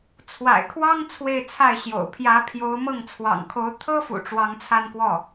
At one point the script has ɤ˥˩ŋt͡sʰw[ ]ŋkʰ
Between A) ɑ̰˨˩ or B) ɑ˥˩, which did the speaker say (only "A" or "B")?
A